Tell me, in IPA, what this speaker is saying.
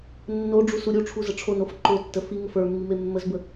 nːoɖ͡ʐu suɾʲuʈ͡ʂʰu zəʈ͡ʂʰonof ǃotːə fi ŋəfə˞mːi memːəzbə

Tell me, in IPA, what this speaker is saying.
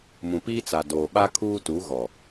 mũ˨piː˦t͡sa˨ doː˨ɓa˦kʰuː˦tu˨˦ ɣɔ˨

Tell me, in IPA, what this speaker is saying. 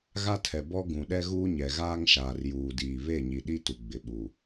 ɣa˦tʰɛ˨bɔ˦ ɡũ˨ɗɛ˦ ɣuː˦ɲɛ˨ ɣaː˦ŋʃaː˨r juː˨diː˨ βe˦˨ɲi˨ɗi˦ tu˨ɡ͡bɪ˨ɓu˨

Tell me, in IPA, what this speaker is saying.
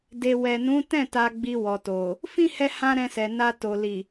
de˨wɛ˨nũ˨˦tɛ̃˦˨ ta˧ɡ͡bi˧wɔ˨to˨ | fĩ˦hɛ˧hã˧ ɾɛ̃˧sɛ˨na˧ to˨ li˨

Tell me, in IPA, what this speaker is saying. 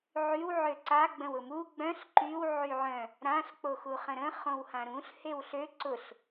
ʕyw ʕøǀa ɡ͡bə̃wʊmu ɡ͡bœ̃ɬ ǃyw ʕyʕœ̃ | ɾãɬ k͡poxuχə̃ɾə̃ χõwhãɾũɬ hewɬø ǀʊɬ

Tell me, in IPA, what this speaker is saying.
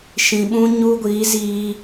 ʃĩ˨ɓũ˧ɲu˧ ɡʷiː˨˦ziː˧

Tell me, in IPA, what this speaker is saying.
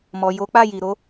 mɔ˨ jo˨˦k͡pa˦˨ ji˨ɾo˨˦

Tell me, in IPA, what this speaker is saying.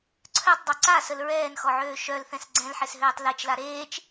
ǀʰœtˤdˤœ ǀasəl ɹɛːnxɔʕøː ʃœlθɛ̃s ɡ͡ǀɛ̃lħesɦøːtˤ let͡ʃla ɾeːt͡ʃ

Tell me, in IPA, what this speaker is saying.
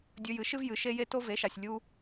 dʲɵ˧jɨ˩˥ʃɨ˥v jɨ˩˥ʃe˥je˥ to˥ve˩˥ʃa˩sʲ lʲu˧

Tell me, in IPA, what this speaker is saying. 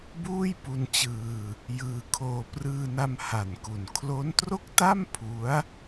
buː˥˩jpu˧nt͡ɕɯː˧ | jɯː˧kʰoː˧ prɯː˧na˧m ha˨˩nku˨˩n kʰlo˦˥ntro˥˩k̚ta˥˩m pʰu˦˥a̯

